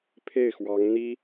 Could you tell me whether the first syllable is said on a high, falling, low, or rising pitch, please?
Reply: falling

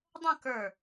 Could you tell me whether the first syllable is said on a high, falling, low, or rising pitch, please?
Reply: falling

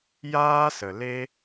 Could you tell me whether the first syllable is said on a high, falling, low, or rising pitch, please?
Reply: high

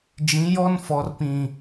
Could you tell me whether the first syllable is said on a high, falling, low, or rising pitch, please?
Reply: rising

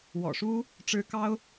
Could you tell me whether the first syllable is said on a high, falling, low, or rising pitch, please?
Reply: low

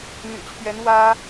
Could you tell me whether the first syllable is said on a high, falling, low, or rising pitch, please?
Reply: low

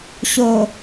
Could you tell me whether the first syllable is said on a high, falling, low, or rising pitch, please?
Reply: low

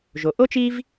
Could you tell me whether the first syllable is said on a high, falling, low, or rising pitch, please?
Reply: low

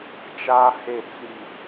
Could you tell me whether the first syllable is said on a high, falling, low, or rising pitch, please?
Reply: high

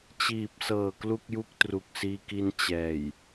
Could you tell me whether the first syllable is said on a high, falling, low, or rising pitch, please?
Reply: low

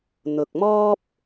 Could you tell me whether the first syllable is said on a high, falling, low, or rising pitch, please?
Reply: low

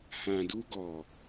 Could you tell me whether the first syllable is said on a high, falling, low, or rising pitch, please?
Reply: low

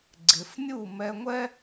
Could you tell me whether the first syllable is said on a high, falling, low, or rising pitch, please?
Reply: low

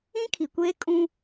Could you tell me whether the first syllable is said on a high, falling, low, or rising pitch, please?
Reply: high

